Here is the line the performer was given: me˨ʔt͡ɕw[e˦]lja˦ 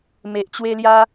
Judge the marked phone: correct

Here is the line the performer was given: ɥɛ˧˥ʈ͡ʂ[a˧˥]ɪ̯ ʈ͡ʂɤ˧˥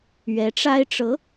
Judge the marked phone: incorrect: a˥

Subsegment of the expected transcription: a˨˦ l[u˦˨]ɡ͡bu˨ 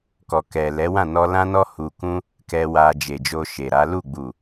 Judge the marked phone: correct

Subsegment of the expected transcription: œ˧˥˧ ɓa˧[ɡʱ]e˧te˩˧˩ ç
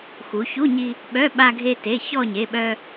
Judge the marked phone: correct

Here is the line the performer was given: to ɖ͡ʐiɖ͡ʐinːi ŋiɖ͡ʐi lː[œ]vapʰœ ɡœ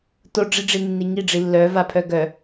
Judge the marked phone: correct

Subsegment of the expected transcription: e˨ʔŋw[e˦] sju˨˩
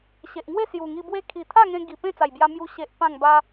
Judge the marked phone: incorrect: e˥˧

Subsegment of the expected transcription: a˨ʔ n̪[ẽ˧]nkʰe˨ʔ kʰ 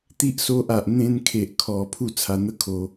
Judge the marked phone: correct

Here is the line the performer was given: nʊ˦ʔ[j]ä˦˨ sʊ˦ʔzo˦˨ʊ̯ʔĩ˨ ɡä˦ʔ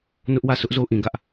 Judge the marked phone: incorrect: w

